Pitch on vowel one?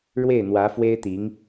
falling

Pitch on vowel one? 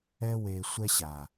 high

